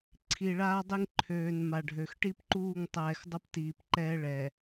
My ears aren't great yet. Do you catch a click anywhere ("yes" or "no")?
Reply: yes